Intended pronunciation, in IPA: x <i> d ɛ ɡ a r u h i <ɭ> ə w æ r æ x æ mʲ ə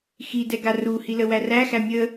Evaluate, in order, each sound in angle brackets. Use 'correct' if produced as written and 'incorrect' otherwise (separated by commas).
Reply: correct, incorrect